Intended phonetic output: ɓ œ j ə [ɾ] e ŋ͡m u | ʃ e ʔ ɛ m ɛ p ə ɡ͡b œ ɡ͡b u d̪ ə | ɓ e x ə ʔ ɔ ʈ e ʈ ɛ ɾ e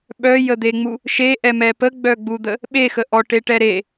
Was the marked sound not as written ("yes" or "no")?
yes